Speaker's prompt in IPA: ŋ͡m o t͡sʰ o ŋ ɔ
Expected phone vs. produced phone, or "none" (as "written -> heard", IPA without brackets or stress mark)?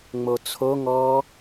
none